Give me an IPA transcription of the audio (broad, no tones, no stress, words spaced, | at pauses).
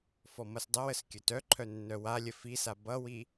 fɔmʌsdˤəwəs kʲɵtœǃʰœ nːœwalʲə fisa bʌwi